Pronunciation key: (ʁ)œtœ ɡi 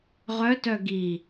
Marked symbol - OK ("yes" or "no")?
yes